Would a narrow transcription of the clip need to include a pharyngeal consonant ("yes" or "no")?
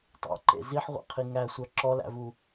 yes